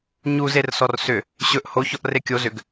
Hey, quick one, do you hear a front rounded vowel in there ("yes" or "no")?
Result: yes